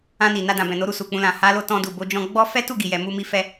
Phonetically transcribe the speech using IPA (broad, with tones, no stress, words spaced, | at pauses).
ã˧ni˨ na˧dã˨bɛ̃˨no˨˦ ɾu˧su˨k͡pũ˧ lã˨ ha˨˦lo˧ tɔ̃˧du˨bo˨˦d͡ʒɔ̃˧ ɡ͡bɔ˦ fɛ˦tu˦˨ɡi˨jɛ˨ mu˧mi˧ fɛ˧